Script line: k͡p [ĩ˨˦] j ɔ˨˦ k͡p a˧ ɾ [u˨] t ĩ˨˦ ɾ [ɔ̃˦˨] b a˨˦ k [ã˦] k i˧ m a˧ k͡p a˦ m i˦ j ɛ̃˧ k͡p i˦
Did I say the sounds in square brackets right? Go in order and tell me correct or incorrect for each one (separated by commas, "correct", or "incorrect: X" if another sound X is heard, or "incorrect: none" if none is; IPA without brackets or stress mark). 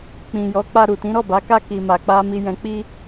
incorrect: ĩ˨, correct, incorrect: ɔ˦˨, incorrect: a˦